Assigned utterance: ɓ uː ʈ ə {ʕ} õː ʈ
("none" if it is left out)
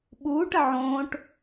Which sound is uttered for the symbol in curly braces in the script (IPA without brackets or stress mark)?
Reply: ʕ